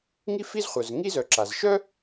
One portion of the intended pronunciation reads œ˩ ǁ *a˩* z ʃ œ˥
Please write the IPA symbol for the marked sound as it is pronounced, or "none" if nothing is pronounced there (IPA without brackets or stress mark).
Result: a˩